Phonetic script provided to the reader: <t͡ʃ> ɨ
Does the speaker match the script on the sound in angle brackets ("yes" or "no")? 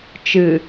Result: yes